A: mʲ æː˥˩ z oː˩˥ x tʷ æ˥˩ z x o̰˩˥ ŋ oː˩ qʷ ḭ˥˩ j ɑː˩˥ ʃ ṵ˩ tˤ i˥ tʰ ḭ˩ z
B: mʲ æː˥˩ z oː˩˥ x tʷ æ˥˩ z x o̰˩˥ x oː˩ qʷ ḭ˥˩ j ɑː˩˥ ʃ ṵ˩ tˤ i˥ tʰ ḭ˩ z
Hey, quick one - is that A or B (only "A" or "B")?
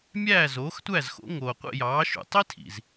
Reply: A